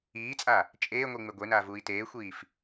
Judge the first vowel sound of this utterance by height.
high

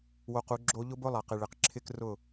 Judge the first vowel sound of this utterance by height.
mid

